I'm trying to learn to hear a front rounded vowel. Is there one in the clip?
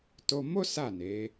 no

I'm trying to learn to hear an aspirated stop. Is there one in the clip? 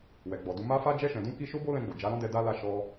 no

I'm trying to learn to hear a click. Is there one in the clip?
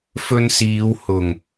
no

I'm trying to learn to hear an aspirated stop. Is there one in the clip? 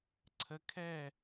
yes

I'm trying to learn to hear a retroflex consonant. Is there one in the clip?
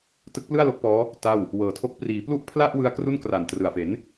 no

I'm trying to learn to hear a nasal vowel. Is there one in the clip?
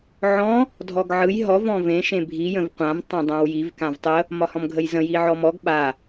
yes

